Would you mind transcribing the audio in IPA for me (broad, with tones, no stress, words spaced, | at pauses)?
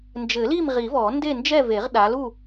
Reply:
nd͡ʒɘ˨˩˦li˥˨mʁi˨˩˦vɔ˨˩˦ nde˥˨nd͡ʒɛ˥˨ve˨˩˦ʁ ɗa˨˦lu˥˨